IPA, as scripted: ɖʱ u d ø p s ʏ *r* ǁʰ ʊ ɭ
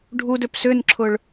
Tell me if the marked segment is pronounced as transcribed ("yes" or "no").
no